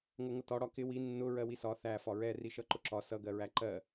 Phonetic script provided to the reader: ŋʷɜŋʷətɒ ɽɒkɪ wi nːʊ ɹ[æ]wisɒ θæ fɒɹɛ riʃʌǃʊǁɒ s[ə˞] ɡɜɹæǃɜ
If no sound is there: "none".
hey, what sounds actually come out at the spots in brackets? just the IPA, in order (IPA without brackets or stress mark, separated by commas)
ɜ, ʌ